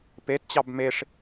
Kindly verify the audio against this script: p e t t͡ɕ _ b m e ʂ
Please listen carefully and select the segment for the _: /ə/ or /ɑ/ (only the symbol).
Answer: ɑ